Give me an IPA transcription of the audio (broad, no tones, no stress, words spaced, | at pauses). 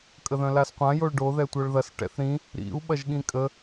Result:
kʼəðœ̃lasqʷã joɭɖo ðɛtʷœɭðɐs ʈɛ̰θɾĩ | ɾḭu̯ ɓɐʒɠĩkʼə